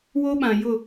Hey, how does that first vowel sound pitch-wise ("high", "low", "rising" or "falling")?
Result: high